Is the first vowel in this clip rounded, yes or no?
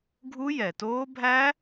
yes